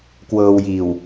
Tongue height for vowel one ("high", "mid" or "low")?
mid